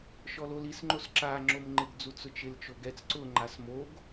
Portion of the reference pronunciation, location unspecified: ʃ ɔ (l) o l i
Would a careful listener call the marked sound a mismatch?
no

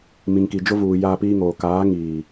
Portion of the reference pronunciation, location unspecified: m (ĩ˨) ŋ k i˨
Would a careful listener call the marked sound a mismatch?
no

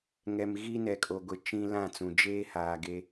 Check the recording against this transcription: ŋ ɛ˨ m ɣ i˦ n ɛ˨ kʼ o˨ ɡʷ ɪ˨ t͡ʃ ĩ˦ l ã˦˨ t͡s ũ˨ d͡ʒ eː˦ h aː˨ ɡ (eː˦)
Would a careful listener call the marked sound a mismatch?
yes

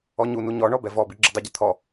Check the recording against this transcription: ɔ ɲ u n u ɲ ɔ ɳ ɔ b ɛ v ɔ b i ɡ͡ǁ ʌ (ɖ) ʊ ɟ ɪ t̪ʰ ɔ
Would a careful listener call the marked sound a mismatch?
yes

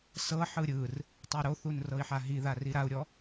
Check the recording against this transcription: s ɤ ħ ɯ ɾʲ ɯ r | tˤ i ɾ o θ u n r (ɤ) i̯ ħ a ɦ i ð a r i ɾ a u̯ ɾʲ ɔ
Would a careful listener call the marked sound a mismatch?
no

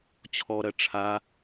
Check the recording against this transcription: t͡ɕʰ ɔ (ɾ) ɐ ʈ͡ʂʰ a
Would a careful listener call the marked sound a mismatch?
no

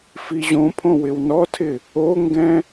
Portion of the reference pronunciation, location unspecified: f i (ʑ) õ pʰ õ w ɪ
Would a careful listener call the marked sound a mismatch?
no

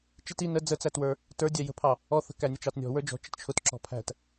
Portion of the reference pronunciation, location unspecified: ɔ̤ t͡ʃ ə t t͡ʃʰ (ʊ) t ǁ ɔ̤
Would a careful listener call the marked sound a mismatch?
no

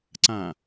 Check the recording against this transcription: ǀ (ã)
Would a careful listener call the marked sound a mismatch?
no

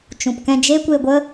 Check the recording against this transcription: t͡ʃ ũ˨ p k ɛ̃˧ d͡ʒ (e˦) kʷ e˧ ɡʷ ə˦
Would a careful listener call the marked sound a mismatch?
no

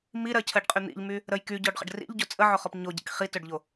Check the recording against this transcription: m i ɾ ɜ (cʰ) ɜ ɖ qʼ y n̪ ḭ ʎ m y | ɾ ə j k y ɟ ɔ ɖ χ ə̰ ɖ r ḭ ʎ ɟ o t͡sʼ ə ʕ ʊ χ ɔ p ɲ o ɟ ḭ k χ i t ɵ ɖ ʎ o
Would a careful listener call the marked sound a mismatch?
no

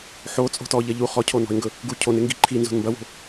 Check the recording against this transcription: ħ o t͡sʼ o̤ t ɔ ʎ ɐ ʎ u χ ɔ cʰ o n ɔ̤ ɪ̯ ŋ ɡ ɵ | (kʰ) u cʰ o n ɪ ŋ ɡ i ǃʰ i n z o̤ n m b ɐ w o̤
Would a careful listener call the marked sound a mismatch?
yes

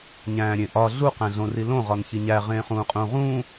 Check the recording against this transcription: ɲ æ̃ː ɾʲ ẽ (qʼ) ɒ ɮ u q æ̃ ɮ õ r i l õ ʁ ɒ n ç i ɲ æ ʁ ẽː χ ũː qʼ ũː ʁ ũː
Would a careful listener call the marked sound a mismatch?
yes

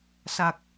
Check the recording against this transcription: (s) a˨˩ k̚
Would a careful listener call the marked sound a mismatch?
no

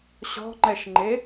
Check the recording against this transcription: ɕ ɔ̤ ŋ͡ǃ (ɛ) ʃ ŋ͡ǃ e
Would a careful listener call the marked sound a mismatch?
no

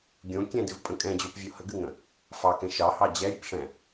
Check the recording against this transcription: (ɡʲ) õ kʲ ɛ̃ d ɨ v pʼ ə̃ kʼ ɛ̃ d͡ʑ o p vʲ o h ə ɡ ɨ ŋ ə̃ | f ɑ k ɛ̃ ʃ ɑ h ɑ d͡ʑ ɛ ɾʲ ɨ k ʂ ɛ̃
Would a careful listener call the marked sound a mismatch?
no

